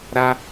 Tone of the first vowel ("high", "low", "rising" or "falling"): high